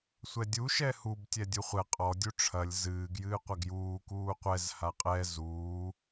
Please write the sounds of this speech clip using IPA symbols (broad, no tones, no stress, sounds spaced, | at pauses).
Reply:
sʷ ɛ dʲ u ʃ ɛ h u b tʲ ɛ dʲ u χʷ ɛ qʼ ɔ dʲ u ʈ͡ʂʰ ɐ lʲ z ɨː ɡ j ɨː qʷ ɐ ɡ j uː k uː qʷ ɛ z h a qʼ ɛ z uː